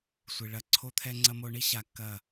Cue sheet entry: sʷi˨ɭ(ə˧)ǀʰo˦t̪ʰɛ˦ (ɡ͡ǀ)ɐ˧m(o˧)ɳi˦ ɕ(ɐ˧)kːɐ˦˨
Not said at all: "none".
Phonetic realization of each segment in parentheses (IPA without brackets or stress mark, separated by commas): ɐ˧, ŋ͡ǀ, o˧, a˧